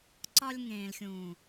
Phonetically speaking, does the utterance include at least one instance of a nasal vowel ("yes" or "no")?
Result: yes